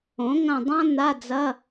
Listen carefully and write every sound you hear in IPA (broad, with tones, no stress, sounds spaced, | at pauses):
õ˩˥ ŋ ɐ̃˦˨ dˤ ã˥ n̪ a˧˥˧ d͡z ɐ˧˥˧